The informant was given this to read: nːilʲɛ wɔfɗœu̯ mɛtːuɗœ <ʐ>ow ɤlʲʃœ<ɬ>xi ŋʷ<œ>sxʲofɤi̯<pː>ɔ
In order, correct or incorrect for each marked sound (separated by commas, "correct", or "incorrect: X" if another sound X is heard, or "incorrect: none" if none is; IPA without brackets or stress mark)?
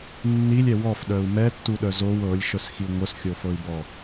incorrect: z, incorrect: s, correct, incorrect: b